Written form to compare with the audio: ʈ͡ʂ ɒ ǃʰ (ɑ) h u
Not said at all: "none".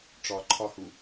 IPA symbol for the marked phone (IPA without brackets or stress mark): ɒ